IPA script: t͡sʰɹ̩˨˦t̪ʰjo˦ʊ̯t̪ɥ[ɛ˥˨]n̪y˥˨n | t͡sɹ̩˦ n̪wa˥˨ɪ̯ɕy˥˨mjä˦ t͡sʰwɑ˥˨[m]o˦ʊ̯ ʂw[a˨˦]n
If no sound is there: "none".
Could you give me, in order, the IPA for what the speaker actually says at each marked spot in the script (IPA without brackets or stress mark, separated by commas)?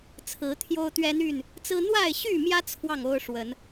ɛ˦, ŋ, ə˨˦